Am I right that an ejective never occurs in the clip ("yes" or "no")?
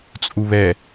no